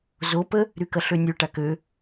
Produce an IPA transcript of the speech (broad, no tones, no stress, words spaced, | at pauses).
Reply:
zopə | ɾykɐɬønʲø ʈakø